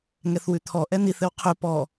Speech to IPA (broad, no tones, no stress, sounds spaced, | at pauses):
ŋ ɛ θ w ʉ t̪ʰ ɔ ʔ ɛ n̪ i θ ɘ w qʰ ʉ p ɔ